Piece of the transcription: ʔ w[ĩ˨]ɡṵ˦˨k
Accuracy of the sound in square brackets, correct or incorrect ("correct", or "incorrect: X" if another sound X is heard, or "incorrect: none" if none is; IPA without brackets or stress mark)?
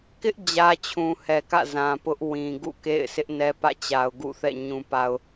correct